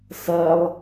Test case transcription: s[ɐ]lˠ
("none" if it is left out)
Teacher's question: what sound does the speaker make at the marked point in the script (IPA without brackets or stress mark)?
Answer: ɐ